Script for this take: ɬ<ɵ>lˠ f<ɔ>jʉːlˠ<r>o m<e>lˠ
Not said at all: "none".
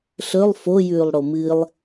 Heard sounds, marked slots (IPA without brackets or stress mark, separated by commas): ɵ, o, ɽ, ɨ